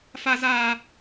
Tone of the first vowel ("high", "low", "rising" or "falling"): high